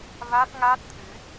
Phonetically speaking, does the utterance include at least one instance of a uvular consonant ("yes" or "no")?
no